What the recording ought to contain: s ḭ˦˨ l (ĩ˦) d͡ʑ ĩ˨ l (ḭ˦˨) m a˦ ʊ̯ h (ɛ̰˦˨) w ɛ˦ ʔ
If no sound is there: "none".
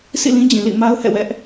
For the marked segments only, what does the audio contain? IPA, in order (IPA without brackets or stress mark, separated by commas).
ĩ˦, ḭ˦˨, ɛ̰˦˨